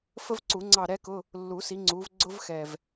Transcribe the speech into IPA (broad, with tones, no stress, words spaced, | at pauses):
fə˥vǀu˨˩˦ŋ͡ǀɑ˦˨ ɾɛ˥kʊ˧˥˧ | lːu˨˩˦si˨˦ ŋ͡ǀu˨˦vɡ͡ǀʊ˥vxɛ˨˩v